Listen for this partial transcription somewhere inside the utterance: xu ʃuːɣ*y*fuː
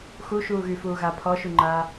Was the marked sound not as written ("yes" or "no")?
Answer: no